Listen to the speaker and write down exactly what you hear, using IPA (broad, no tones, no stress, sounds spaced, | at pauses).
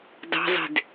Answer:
d ɑ̤ zˤ e̤ d